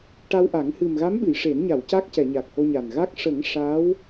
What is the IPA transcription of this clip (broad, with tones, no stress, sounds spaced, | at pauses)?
ʈ a˧ w ʔ a˨˩˦ ŋ h ɨ˨˩ m ɣ a˧˥ m ɓ ɨ˨˩˨ j ʂ e˨˩˦ n ɲ a˨˩˨ w c a˦˥ k̚ c ɛ˨˩˨ ɲ a˨˩ k̚ h o˧ ɲ a˨˩ n ɣ a˦˥ k̚ ʂ ə˨˩˦ ŋ ʂ a˧˥ w